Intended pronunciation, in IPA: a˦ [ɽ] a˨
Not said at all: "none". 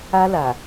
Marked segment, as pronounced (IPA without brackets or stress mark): l